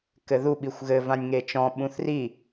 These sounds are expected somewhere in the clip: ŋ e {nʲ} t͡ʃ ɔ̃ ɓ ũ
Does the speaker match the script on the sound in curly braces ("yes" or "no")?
no